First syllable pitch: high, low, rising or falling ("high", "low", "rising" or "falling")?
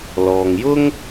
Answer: low